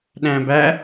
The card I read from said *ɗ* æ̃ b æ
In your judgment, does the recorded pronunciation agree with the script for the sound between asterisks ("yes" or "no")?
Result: yes